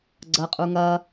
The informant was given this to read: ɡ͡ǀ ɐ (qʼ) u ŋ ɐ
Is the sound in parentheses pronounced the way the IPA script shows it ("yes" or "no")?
yes